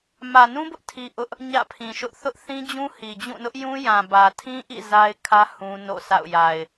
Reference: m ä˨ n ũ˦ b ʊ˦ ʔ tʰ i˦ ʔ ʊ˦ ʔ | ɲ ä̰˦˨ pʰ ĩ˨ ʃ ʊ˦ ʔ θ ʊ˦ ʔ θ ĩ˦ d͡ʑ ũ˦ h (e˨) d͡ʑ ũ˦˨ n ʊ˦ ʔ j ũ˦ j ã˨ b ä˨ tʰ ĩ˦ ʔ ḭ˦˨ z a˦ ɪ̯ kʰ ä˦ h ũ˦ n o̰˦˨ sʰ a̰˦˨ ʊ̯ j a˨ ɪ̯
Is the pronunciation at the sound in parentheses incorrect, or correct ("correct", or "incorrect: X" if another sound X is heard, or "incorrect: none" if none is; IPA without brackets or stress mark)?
incorrect: i˨